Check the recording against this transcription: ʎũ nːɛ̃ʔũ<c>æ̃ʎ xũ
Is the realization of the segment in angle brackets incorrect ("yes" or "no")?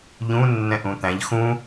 yes